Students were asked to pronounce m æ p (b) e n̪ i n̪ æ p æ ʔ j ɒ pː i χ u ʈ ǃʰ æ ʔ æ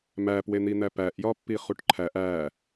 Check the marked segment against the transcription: incorrect: w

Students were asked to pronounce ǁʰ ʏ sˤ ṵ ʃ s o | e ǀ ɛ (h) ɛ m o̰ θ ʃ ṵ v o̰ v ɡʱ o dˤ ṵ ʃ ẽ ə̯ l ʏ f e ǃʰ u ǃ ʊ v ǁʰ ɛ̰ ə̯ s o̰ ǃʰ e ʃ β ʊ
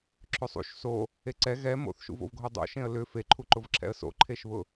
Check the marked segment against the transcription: incorrect: ɣ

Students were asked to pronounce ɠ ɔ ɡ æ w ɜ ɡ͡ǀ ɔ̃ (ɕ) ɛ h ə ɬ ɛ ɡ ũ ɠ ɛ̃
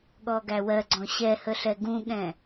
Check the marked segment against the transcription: correct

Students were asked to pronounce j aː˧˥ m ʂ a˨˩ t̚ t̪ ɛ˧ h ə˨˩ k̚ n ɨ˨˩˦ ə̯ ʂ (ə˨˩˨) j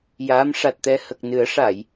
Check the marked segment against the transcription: incorrect: a˨˩˨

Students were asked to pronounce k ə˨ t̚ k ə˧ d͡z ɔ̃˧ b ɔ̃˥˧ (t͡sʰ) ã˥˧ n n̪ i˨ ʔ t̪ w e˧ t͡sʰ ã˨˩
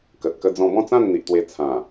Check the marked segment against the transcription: incorrect: t͡s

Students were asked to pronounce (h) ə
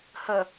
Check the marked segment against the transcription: correct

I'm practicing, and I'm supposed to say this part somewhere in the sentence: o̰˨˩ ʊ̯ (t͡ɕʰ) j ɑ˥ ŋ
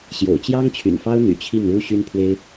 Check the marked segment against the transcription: incorrect: t͡ɕ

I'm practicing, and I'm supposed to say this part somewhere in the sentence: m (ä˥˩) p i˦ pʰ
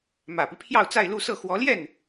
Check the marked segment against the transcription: incorrect: ä˨˩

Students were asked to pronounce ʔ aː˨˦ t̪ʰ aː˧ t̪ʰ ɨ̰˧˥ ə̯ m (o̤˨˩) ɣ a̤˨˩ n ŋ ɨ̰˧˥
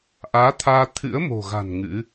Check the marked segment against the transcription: correct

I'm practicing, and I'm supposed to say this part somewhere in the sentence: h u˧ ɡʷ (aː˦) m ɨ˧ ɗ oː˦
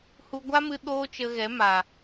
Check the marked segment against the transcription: incorrect: a˦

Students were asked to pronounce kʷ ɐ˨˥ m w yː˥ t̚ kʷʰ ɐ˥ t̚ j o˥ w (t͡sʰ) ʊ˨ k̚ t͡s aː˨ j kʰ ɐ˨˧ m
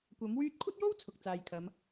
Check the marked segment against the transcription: correct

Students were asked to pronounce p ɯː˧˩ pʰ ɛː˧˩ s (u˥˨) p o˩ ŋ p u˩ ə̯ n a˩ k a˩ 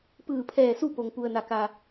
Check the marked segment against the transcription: correct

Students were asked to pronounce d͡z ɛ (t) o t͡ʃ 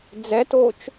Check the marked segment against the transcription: correct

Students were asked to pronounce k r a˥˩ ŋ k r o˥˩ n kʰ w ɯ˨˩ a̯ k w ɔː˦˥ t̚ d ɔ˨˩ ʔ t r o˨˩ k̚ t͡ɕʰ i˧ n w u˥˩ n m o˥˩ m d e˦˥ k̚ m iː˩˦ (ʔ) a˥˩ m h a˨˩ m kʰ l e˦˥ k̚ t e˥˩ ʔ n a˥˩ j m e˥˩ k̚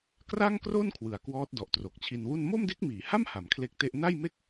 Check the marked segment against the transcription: incorrect: h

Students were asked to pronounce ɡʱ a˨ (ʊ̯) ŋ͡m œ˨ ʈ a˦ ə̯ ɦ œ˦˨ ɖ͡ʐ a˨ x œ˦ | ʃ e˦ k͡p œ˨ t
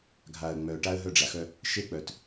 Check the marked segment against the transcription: incorrect: ə̯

